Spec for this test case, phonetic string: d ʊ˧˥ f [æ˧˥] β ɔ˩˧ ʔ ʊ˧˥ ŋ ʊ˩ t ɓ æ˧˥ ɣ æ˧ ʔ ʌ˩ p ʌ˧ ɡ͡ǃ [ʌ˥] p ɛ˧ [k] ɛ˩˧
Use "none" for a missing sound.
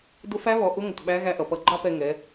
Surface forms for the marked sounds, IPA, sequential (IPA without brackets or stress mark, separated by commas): æ˧˥, ɑ˥, ŋ